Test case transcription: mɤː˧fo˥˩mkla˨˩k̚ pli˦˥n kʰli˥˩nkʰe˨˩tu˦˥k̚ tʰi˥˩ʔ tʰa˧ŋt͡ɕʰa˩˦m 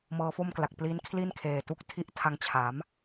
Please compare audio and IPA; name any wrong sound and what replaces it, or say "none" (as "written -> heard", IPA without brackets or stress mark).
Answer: e˨˩ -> eː˨˩